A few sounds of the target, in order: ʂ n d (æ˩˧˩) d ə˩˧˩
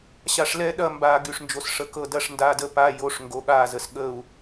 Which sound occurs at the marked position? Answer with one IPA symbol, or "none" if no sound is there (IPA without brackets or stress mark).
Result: a˩˧˩